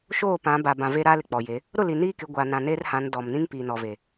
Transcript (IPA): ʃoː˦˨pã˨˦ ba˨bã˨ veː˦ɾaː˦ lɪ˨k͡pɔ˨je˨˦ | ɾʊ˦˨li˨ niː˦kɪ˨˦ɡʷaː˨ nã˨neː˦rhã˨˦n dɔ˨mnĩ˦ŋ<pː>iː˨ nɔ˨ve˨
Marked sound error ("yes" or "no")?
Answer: yes